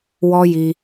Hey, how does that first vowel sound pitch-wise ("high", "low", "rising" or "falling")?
high